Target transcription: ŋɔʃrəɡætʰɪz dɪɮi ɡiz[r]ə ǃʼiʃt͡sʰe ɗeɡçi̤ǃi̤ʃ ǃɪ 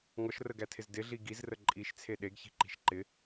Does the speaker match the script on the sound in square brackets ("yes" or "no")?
yes